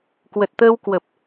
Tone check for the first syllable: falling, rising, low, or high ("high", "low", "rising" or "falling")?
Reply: low